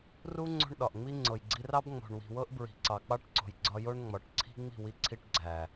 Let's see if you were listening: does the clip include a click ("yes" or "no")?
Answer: yes